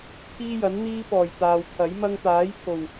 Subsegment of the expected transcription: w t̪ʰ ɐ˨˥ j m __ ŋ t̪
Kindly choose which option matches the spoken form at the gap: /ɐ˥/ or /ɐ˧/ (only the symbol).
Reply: ɐ˥